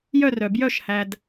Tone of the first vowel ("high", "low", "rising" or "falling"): falling